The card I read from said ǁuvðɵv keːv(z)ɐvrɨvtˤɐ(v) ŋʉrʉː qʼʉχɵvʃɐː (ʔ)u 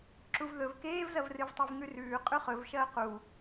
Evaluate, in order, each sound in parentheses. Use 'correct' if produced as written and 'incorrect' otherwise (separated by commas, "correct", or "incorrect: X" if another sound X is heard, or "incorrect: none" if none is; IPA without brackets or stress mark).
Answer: correct, correct, incorrect: q